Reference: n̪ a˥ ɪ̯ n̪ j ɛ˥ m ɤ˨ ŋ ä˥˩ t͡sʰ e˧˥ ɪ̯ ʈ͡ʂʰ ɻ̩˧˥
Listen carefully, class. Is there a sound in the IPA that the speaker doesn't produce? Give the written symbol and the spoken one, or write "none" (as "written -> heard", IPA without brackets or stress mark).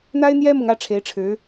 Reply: t͡sʰ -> ʈ͡ʂʰ